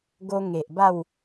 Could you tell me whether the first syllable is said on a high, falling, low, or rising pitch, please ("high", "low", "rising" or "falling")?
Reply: high